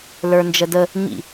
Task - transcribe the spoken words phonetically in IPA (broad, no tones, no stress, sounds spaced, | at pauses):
l ə˞ n d͡ʒ ə d ə | ɲ ḭ